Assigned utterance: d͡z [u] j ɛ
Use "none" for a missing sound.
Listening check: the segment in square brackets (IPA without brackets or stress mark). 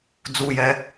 u